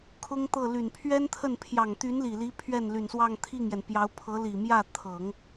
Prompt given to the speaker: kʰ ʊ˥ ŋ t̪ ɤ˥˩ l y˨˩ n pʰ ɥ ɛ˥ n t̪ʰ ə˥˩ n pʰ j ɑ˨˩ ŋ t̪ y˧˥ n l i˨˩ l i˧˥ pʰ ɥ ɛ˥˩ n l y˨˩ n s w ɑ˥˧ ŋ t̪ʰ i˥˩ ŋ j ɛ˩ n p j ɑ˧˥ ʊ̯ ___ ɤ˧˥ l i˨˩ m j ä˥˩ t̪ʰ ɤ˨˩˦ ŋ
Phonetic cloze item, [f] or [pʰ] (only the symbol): pʰ